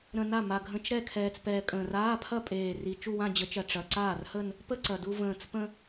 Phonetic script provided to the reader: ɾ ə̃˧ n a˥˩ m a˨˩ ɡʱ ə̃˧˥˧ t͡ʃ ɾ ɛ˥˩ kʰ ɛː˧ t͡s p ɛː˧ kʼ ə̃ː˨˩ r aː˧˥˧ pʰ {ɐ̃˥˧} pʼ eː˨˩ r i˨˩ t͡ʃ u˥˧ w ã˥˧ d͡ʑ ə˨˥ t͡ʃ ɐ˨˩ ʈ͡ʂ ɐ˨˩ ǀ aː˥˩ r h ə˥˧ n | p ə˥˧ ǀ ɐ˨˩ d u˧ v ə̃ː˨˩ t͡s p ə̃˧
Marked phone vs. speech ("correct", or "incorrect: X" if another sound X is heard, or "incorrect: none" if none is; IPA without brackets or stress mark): incorrect: ɐ˥˧